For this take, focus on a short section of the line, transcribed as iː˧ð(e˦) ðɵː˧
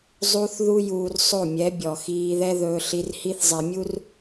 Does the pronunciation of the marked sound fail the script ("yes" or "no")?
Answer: yes